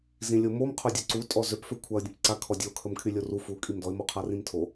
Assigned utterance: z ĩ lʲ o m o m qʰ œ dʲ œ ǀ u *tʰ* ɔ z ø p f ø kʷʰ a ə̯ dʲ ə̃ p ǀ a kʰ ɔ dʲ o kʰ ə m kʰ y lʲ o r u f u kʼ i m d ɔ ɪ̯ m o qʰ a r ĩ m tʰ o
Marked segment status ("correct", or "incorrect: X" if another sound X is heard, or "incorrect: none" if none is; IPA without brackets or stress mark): incorrect: tʼ